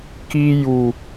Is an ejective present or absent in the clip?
absent